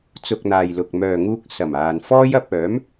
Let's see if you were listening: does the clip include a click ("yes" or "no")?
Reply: no